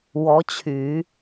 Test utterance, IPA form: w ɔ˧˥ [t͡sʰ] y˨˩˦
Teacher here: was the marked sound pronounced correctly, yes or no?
no